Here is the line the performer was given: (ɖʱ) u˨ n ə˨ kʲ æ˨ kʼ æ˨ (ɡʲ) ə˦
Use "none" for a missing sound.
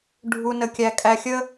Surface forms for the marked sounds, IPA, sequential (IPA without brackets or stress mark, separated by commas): ɖʱ, xʲ